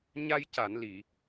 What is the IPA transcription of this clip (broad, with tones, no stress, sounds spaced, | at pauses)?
ɲ a˧ j c a˨˩˨ n l i˨˩˨